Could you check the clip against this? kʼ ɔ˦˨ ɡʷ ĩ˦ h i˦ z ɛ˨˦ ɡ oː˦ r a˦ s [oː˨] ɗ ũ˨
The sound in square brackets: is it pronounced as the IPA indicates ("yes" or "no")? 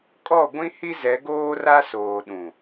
yes